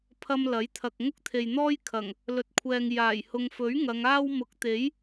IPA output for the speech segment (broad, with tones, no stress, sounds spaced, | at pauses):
pʰ ɐ˧ m l ɐ˨˥ j t̪ʰ ɐ˨ k̚ ŋ ʊ˥ k̚ t̪ʰ e˨ j n̪ ɔː˥ j kʰ ɐ˨˩ ŋ | l ɵ˨ t̚ kʷʰ ɛː˨ ŋ j aː˨˩ j h ʊ˨ ŋ f ɵ˨˥ ɥ ŋ ɐ˨˧ ŋ aː˥ w m ʊ˨˥ k̚ t̪ e˨˥ j